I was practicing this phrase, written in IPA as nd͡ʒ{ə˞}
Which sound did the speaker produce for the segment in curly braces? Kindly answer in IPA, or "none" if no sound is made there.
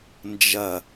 ɐ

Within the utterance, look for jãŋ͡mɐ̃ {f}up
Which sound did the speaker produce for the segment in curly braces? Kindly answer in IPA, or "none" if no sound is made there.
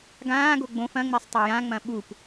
ɓ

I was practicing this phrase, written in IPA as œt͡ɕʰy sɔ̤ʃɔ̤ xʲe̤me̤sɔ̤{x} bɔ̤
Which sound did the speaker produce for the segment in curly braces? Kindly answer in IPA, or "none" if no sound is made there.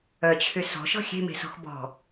x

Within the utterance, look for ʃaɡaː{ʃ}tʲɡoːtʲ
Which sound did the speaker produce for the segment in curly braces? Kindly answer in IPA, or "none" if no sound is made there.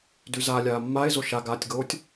none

